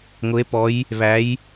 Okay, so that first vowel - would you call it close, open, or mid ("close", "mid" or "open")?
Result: close